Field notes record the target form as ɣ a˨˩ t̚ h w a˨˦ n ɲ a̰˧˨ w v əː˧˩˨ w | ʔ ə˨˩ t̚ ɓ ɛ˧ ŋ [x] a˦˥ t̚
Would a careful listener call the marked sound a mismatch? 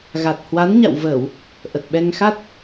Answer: no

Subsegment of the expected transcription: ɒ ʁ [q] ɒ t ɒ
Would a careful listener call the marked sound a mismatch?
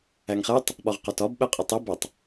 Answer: no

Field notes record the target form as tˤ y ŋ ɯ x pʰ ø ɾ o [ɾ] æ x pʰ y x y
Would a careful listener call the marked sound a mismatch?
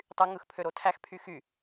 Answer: yes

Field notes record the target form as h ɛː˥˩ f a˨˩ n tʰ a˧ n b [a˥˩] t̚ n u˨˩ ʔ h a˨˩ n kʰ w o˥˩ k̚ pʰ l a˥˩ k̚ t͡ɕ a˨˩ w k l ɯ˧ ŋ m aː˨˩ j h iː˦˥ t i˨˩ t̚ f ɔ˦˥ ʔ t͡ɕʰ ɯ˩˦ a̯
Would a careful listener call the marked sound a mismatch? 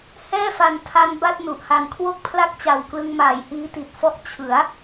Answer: no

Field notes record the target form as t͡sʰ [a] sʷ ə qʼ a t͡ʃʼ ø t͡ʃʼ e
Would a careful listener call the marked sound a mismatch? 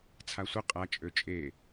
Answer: no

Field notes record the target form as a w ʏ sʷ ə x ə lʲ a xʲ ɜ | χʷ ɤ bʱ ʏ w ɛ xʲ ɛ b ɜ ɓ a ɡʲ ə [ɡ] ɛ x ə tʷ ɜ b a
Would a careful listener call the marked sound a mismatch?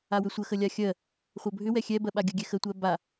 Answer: yes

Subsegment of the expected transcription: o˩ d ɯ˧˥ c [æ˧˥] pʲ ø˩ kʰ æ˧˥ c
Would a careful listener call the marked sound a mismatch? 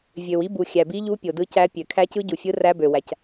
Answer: no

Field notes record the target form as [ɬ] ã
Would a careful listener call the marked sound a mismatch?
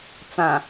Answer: yes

